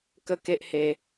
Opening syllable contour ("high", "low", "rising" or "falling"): falling